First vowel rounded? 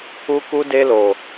yes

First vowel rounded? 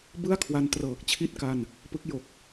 no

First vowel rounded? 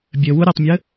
no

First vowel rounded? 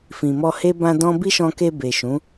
no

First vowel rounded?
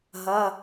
no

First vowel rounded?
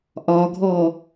yes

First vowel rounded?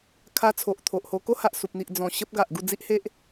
no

